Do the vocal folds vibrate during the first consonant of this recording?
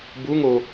yes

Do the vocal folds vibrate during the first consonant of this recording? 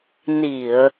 yes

